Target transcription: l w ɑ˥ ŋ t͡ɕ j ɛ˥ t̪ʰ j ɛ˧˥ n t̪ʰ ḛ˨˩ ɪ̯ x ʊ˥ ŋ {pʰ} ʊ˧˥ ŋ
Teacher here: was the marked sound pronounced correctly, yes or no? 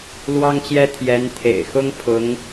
yes